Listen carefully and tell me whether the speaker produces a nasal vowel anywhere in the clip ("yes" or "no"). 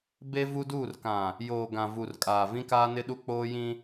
yes